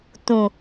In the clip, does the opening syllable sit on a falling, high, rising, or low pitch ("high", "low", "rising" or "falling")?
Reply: low